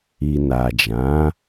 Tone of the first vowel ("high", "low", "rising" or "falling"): low